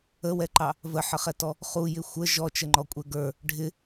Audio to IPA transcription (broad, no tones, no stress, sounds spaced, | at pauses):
ə w ɛ ǃ ɑ | v ə ħ ə χ ɛ t ɔ | χ u j ɪ xʷ ə ʒ ɔ t͡ʃ ə ŋ͡ǃ ɔ kʷʼ ɛ ɡ ə˞ | ɖʱ ɪ